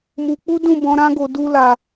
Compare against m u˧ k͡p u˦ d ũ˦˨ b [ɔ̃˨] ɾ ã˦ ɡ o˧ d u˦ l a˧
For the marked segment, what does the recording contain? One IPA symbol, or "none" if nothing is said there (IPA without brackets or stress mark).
ɔ̃˨˦